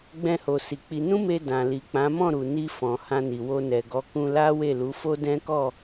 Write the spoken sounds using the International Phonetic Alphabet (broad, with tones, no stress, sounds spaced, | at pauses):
ɡ͡b ɛ̃˧ h o˨ s i˨ k͡p i˧ n ũ˦ m e˧ d ã˨ l i˨ k͡p ã˨˦ m ɔ̃˦˨ ɾ u˨ n i˧ f ɔ̃˨ h ã˧ n i˨ w o˧ n ɛ˨ ɡ ɔ˨˦ k ũ˧ l a˦ w e˦˨ l u˨˦ f o˦ d ɛ̃˦ k ɔ˦˨